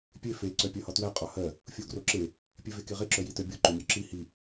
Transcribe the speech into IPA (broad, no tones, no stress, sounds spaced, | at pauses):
pʲ e f e ǀ œ pʲ ɜ h ɒ t w æ qʼ ɒ h ɜ | fʲ o ɡ r o ǁ e | pʲ e v e k e ʁ e ǁ œ j i t œ bʲ o ǃ o mʲ œ ǁ i h i